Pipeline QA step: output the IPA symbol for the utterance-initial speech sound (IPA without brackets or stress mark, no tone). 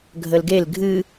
ɡʱ